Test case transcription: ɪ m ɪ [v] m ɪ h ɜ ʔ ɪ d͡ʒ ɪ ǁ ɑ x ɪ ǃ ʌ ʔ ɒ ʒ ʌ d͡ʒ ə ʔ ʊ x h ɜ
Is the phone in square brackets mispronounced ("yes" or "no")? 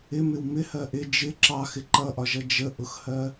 yes